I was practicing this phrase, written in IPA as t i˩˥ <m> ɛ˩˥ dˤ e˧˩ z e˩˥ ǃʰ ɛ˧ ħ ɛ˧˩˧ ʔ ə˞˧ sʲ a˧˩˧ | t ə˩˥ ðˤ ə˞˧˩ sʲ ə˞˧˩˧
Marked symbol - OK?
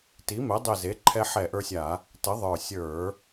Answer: yes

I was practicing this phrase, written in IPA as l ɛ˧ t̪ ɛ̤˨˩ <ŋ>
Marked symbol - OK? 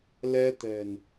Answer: no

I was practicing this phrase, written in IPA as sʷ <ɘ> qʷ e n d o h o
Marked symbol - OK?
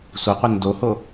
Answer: yes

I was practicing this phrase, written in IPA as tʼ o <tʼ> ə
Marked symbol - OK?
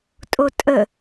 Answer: yes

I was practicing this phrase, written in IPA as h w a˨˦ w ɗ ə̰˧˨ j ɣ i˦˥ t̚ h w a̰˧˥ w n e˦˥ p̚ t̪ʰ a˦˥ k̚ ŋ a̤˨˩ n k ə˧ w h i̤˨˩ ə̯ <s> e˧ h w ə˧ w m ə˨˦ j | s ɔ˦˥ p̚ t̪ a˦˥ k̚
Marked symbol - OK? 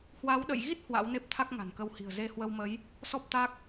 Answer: no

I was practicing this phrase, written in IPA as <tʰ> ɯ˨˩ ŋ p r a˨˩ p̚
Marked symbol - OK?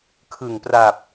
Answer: no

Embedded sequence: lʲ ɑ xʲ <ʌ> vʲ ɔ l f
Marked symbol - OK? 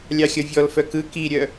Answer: yes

